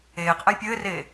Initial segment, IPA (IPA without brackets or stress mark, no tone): eː